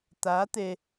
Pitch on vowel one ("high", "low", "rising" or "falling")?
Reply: rising